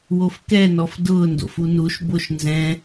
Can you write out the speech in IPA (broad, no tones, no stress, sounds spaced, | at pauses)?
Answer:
w o f k ɛ n ɔ f d ʊː n d o̰ f u n u ʃ b o ʃ n z ɛ̃